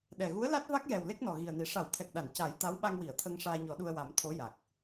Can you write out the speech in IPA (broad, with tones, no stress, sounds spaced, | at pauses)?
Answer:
ɗ ɛ˨˩ ɣ u˧˥ ə̯ l a˦˥ t̚ v a˦˥ k̚ j ɛ˨˩ w l e˦˥ k̚ n ɔ˨˩ ɣ i˨˩ ə̯ n i˨˩˨ ʂ a˨˩˦ w t̪ʰ ɛ˨˩ k̚ ɗ a˨˩˨ n c a˨˩˦ j t̪ a˧˥ w ɓ a˧ ŋ w i˨˩˨ ə̯ t̪ʰ ə˧ ŋ ʂ aː˧ ɲ ɔ˨˩˦ ɗ u˧ ə̯ w a˨˩˦ m t̪ʰ o˧˥ j a˨˩ k̚